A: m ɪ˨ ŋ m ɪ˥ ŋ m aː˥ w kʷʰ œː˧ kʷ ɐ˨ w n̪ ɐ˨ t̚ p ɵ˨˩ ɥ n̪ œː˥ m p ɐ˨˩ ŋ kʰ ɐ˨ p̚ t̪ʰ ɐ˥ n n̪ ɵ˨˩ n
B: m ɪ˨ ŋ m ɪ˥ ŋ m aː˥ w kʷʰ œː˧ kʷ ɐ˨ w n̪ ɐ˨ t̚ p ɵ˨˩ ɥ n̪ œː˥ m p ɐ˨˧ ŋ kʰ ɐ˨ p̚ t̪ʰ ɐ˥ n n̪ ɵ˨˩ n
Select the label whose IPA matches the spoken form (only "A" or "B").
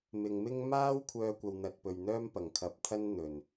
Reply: A